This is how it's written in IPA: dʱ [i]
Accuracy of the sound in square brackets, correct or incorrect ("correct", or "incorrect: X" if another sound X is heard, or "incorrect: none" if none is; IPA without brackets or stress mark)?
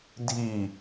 correct